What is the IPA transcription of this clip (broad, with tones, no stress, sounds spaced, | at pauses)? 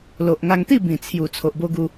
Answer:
l o˨ ʔ ŋ a˧ ŋ t̪ i˥˧ b ĩ˨˩ t͡sʰ j u˨˩ t͡sʰ o˨ ʔ b o˧ ɡ u˧